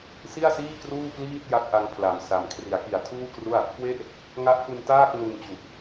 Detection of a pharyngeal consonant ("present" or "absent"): absent